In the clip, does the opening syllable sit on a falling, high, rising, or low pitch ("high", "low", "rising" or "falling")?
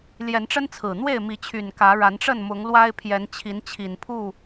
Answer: rising